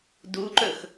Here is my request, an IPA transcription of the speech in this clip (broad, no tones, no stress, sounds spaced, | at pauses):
d u ǃ ɵ x